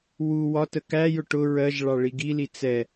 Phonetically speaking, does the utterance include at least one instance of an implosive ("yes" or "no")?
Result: no